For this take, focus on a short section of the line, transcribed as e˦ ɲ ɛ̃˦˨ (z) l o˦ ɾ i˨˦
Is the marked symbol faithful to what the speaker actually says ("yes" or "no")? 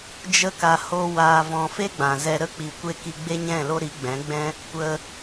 no